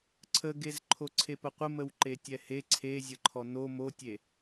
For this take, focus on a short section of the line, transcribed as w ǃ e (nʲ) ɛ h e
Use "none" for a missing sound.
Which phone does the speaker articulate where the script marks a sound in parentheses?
tʲ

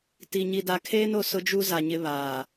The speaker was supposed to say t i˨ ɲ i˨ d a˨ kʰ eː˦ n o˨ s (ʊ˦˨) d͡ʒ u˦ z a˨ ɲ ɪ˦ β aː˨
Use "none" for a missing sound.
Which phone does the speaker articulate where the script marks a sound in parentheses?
ʊ˦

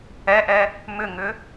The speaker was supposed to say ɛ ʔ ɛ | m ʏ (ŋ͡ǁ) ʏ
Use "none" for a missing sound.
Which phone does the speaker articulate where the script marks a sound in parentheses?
ŋ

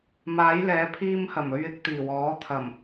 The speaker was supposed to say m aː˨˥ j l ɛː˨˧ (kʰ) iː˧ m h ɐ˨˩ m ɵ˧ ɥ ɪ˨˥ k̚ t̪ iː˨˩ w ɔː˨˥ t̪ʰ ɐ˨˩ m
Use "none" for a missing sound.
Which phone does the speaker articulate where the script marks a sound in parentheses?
pʰ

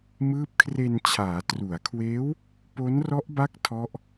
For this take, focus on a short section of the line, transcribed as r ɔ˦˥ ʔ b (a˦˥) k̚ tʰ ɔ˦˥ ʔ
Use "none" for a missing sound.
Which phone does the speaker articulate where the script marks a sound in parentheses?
a˦˥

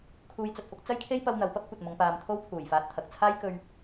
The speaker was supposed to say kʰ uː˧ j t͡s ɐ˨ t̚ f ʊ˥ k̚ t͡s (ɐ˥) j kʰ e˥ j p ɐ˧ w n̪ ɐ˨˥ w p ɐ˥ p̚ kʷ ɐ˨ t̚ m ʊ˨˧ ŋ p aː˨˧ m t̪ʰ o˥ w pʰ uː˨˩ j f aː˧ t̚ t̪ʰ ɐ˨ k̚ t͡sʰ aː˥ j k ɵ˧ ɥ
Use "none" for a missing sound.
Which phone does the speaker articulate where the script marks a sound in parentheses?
ɐ˥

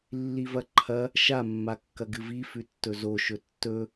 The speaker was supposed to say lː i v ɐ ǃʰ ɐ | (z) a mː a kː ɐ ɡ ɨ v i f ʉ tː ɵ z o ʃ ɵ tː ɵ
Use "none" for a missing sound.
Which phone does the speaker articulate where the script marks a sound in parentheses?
ʃ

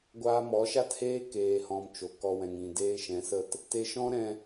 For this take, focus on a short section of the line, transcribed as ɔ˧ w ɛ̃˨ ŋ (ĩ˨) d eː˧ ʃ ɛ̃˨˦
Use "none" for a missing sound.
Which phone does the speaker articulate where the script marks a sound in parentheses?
ĩ˨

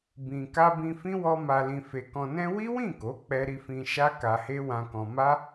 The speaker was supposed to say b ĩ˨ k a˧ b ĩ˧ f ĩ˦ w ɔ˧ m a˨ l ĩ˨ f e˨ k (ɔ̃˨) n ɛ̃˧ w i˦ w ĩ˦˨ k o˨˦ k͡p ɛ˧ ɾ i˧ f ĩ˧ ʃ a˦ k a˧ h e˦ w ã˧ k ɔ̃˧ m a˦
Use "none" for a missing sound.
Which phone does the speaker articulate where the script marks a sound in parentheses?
ɔ̃˨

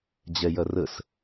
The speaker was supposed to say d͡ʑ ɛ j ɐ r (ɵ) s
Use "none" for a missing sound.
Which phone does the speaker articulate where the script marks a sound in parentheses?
ə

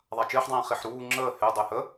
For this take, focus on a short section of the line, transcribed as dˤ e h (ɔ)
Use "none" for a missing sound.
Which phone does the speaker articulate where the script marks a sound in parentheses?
ə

